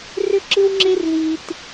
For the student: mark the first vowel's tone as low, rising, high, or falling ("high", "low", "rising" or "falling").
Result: high